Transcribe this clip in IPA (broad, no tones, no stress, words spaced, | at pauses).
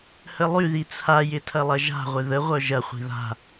həlˠyði t͡sʰajɪ tʰɐlˠɐʒa̤ʁʷɪ ðəʁʷœ ʒɐχʷi̤ ða̤